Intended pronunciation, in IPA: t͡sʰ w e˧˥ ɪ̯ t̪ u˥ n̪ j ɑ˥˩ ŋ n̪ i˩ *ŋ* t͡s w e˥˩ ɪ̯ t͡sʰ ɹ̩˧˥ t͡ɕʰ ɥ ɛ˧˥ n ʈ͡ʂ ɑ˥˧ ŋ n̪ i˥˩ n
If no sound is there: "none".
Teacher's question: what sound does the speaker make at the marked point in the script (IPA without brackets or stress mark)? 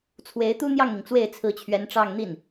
ŋ